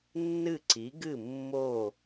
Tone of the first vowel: falling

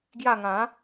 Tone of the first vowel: falling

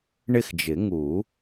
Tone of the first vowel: falling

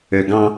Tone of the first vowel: low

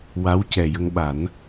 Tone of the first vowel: rising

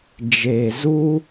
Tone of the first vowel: low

